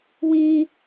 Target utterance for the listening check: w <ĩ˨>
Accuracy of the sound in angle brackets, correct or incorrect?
incorrect